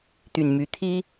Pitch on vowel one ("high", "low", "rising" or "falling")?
low